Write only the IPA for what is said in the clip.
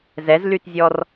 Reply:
zɛzlytzʲɔr

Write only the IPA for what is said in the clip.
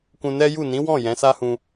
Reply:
kũ˧nɛ˦ju˦˨ nĩ˨˦wɔ̃˦˨ jɛ̃˨˦sa˦hũ˧

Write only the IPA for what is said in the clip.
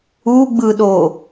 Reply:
uɡ͡bɯɗo

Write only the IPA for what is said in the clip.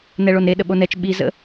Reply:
nɛɭonɾe ɗəɓonɛt͡ʃ ɓi zə̰

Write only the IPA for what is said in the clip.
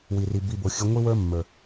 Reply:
wi˨ri˨ bi˨bo˨ xʲə˧ŋʷi˦wə˞˦mːə˞˨

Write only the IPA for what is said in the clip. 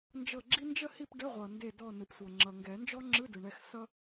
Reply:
nd͡ʒɤ˦˨ɡ͡ǁi˥ nd͡ʒə˦˨hi˦˨p ɖə˧˥˧ʁʷʌ˨ nde˦˨dɔ˦˨nɯ˨p sʷɤ˨ŋ͡ǁʌ˨ ŋɡɛ˨˩˦nd͡ʒɔ˥ŋ͡ǁɯ˧˥˧ dɯ˨ɳɛ˦˨x sʌ˥

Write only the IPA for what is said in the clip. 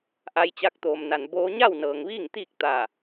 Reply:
ʔa˧jt͡ɕa˧k̚ t̪oː˩mna˩n boː˧ɲa˥˨wnɤː˩ŋ ʋiː˥˨ŋt̪iː˥˨k̚ t̪a˧˩

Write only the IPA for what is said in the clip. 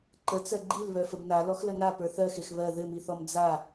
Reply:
ǃət͡sɜ ɡ͡ǃil βœfəbna lɔxləna pə˞θɜxex βɜ ðɘmiθɔm d͡za

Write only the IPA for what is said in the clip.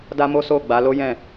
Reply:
da˦mo˦so˦˨ ɡ͡ba˨˦ lo˦ jɛ̃˦˨

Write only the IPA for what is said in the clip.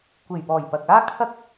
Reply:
kʷe˨˩jpɔː˨˩j pɐ˨k̚aː˥ kʰɐ˥k̚

